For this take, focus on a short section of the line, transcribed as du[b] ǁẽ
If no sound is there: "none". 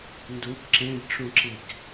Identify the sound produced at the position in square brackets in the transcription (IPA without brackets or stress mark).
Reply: b